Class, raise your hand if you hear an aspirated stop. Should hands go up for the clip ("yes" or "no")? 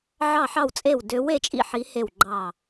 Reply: no